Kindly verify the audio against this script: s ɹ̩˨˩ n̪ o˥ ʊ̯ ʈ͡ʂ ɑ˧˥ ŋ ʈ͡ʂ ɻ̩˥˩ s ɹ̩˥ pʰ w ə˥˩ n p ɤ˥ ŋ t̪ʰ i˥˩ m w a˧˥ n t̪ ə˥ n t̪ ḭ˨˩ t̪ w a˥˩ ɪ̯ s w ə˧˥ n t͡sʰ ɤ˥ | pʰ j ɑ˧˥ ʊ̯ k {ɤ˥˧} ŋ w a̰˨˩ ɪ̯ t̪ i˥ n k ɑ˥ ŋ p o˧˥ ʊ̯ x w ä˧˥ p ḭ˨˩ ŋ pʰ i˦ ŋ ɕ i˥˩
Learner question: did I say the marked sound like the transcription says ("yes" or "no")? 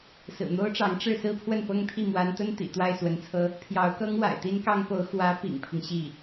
no